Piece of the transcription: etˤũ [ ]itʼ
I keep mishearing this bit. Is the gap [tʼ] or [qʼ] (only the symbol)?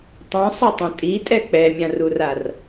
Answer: tʼ